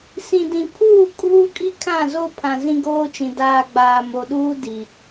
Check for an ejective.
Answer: present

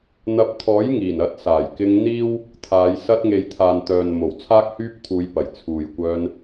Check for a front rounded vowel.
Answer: present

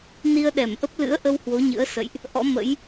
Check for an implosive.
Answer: present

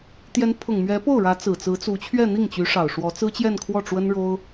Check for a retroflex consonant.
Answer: present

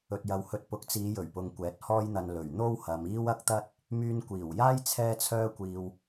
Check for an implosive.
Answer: absent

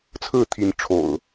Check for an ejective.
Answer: absent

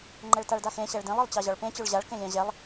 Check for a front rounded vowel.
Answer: present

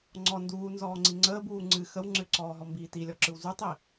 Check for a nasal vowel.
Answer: absent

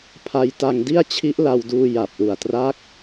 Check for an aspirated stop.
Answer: present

